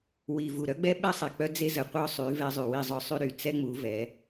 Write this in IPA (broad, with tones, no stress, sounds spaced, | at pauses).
w i˨ v u˨ ɾ œ˦ ɡ͡b ɛ˦ ɓ ɛ˦ sˤ ɛ˨ k͡p œ˦ d͡z e˦ z ə˨ qʷ œ˦ sˤ y˨˦ v ɛ˦ zˤ y˨ w i˦˨ zˤ œ˦ sˤ y˦ ɾ y˨ t͡s ɛ˦ ŋ͡m u˨˦ v ɛ˨˦